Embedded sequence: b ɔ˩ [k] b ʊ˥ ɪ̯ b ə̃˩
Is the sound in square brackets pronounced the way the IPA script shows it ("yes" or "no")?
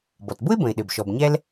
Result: no